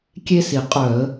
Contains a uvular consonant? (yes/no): yes